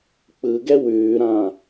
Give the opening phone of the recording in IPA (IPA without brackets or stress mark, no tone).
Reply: k͡p